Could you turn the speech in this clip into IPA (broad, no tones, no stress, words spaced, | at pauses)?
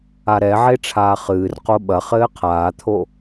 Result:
aɾɛʕe ʈ͡ʂʰaːχɨːrqo ɓɐ χɘːqʰaːt̪ʰo